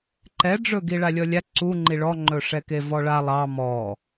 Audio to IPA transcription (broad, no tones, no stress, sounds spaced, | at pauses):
ǃ ɛ ɖ͡ʐ ɵ ɡ i ɭ a lʲ ɔ lʲ a ǀ u ŋ͡ǃ i ɭ ɔ ŋ͡ǃ ɵ ʂ ɛ k e v ɔ ɭ a lˠ ɑ m ɔ